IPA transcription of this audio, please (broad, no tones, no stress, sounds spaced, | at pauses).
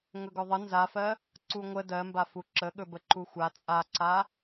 ŋ ɵ ɡ ɵ ðˤ ə n z a f ɜ | ǀ u ŋʷ ə d ɜ m b a f u ǁ ə ɠ ɵ b ə ǃ u xʷ a t͡sʼ a ǀ a